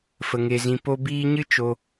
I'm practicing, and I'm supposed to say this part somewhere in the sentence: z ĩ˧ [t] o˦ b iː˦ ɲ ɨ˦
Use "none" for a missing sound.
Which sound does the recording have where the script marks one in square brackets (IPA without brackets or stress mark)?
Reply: p